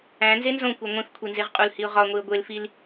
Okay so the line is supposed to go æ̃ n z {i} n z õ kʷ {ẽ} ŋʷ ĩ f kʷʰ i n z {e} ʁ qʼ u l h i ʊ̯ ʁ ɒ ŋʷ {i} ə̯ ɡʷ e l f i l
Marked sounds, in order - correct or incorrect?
incorrect: e, incorrect: e, correct, correct

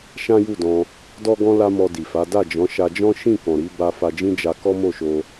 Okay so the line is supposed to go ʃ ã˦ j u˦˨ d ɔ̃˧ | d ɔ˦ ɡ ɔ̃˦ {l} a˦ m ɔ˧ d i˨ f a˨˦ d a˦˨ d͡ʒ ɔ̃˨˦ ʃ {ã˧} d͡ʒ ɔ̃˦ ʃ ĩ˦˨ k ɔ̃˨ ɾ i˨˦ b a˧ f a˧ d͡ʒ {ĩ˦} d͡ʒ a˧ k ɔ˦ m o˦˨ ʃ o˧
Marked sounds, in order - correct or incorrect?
correct, incorrect: a˧, correct

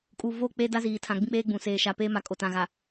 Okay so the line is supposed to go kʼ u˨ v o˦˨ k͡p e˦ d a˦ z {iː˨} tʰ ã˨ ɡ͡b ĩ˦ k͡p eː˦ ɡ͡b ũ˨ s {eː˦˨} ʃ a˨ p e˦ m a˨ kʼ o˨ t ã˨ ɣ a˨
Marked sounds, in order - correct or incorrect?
correct, incorrect: eː˨

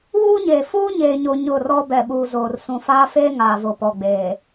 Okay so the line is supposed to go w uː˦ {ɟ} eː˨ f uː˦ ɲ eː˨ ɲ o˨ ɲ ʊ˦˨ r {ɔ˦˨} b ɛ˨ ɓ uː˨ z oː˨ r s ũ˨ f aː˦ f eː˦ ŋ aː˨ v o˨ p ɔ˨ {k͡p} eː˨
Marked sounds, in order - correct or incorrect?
incorrect: ɲ, incorrect: ɔ˦, incorrect: ɡ͡b

